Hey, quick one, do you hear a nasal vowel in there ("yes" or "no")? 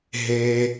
no